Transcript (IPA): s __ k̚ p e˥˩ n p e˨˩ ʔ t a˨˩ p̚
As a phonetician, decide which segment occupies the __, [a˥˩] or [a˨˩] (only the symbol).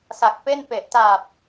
a˨˩